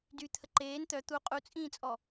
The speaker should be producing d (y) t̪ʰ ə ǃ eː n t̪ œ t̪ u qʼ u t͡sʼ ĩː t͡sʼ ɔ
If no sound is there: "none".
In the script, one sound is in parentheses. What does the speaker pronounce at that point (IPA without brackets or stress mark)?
y